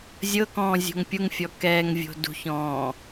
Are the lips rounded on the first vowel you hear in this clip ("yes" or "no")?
no